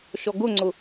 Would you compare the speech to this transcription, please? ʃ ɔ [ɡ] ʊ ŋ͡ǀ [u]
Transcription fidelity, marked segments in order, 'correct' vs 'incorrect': correct, incorrect: ʊ

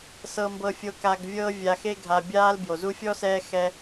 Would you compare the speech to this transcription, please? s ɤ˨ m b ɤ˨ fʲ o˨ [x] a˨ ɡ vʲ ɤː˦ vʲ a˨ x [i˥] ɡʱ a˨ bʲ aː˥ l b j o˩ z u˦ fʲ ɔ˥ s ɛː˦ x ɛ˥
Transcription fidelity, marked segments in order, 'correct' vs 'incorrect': incorrect: k, incorrect: e˥

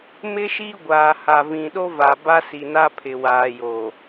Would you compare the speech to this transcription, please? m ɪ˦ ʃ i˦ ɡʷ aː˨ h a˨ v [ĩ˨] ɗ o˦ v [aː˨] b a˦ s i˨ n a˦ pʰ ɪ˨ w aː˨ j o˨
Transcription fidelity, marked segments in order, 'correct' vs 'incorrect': correct, incorrect: a˨

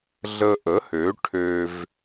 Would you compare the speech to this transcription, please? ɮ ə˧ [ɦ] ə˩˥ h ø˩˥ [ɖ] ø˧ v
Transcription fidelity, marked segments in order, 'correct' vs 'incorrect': incorrect: ʔ, incorrect: ʈʰ

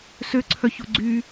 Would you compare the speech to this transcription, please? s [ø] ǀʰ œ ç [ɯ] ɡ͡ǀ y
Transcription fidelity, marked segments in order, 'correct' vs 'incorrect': correct, incorrect: u

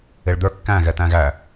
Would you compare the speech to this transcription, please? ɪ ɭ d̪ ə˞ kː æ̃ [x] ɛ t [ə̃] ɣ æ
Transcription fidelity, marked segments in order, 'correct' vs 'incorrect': incorrect: ɣ, incorrect: æ̃

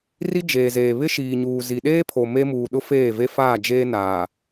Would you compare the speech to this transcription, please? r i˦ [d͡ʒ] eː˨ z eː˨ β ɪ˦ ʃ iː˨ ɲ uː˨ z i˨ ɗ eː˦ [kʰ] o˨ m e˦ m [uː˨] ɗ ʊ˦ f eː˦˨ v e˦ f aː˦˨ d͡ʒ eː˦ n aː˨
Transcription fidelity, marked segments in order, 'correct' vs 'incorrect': correct, incorrect: pʰ, correct

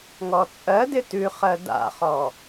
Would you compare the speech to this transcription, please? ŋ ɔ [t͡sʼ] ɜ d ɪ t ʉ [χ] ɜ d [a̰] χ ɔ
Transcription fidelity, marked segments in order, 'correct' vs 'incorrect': correct, correct, correct

